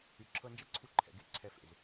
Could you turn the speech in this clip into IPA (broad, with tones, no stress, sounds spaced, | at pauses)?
y˨ ǁʰ ɤ˧ n d͡ʒ ɛ˦ ǀʰ u˧ ǃʰ ɛ̰˨ ɡ e˦˨ ǀʰ ɛ˨ f ḛ˨ z